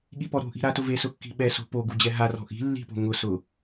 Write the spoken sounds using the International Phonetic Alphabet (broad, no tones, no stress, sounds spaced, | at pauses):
ɠ i p ɔ ɾ o̤ ʔ i̤ ɾ a t ʊ v e s ʊ kː i̤ ɓ ɛ s o̤ p o ɡ u d͡ʑ ɛ ɦ a r ɔ̤ ʔ i̤ lː i̤ p o̤ ŋ ʊ s ʊ